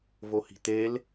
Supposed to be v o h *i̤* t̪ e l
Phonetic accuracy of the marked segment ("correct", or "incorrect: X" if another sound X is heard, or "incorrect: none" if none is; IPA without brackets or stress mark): correct